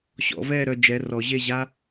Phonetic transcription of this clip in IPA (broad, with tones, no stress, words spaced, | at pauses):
ɕɔ̰˨˩˦vɛː˦˨ɾœ˦˨ d͡ʒɛ˩˧˩rɔ˨˩˦ʑe˦˨ ʑa˥